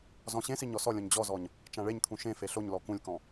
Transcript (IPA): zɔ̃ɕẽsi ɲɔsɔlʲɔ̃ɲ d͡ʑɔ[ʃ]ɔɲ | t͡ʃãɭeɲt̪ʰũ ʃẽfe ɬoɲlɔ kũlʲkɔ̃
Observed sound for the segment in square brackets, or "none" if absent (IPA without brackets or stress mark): z